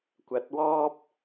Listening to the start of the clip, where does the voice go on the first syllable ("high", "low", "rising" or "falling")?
low